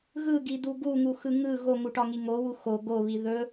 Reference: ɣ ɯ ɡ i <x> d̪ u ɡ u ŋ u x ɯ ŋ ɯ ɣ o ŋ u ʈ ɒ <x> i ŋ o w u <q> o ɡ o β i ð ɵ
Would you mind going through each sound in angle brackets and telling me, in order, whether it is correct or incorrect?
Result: incorrect, incorrect, incorrect

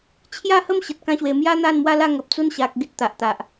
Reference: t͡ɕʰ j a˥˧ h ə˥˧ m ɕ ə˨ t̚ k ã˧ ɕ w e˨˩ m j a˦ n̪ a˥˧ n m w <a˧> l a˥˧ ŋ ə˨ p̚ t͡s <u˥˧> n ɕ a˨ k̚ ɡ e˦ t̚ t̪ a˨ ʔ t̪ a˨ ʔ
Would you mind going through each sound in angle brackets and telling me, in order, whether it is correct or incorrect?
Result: incorrect, incorrect

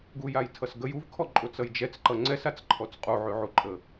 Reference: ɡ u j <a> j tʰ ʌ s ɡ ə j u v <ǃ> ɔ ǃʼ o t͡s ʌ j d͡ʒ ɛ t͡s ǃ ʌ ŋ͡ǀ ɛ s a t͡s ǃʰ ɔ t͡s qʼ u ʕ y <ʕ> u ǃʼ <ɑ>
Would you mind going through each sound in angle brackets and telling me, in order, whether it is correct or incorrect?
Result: correct, incorrect, correct, incorrect

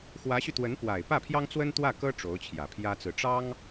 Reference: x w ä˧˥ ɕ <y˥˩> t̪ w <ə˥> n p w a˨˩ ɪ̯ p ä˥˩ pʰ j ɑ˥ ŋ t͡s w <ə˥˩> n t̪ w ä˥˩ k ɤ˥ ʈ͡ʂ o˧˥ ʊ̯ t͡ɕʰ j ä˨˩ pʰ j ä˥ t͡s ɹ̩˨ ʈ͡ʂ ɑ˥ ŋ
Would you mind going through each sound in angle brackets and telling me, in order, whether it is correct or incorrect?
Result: incorrect, incorrect, incorrect

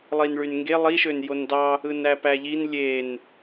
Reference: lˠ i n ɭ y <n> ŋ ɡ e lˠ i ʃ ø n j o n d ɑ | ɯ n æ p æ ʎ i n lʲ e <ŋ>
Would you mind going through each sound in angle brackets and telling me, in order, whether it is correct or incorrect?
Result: correct, incorrect

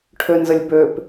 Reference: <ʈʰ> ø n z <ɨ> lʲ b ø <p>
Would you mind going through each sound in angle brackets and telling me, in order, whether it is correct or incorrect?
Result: correct, incorrect, correct

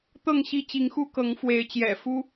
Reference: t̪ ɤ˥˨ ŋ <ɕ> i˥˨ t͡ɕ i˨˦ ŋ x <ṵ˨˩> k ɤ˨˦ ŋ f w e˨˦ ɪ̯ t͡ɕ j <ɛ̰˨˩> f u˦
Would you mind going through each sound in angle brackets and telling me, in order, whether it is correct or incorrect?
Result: correct, incorrect, correct

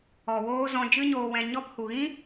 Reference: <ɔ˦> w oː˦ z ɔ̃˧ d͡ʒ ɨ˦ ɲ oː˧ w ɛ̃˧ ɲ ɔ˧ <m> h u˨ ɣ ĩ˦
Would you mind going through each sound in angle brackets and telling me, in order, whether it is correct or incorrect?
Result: incorrect, incorrect

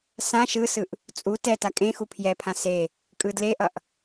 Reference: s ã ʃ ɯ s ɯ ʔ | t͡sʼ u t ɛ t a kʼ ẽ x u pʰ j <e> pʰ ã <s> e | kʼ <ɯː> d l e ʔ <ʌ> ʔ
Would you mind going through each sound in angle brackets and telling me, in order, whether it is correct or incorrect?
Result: incorrect, correct, incorrect, correct

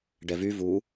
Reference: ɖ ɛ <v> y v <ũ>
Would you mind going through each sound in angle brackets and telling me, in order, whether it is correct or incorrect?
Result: correct, incorrect

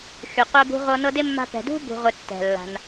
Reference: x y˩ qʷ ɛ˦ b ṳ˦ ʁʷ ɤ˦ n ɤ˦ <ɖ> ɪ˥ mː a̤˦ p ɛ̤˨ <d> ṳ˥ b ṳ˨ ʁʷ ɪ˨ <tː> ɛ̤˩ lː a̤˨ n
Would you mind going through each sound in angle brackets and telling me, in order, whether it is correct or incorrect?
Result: incorrect, correct, correct

